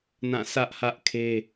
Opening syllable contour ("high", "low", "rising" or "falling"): falling